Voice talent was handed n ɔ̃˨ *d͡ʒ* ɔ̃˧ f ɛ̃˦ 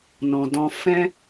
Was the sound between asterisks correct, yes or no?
no